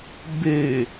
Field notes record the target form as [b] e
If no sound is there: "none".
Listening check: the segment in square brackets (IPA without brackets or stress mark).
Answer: b